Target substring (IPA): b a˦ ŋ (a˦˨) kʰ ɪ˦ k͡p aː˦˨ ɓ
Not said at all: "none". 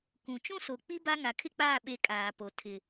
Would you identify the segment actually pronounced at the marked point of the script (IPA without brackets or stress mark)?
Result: a˨